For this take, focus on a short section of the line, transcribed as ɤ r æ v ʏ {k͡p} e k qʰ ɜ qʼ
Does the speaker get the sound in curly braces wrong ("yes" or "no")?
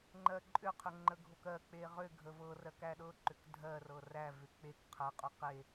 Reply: no